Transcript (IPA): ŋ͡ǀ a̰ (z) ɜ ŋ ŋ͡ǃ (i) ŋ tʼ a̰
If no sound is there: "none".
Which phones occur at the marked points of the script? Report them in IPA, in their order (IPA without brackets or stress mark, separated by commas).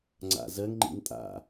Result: z, ḭ